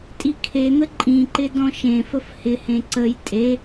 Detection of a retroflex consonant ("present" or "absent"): absent